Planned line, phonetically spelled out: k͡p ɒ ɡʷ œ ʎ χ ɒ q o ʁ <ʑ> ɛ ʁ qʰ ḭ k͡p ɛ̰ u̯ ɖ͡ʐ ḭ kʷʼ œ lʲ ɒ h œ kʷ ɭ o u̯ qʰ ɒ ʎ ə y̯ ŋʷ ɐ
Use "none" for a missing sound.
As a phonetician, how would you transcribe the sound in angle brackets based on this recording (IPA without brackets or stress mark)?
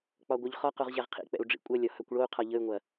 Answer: ʑ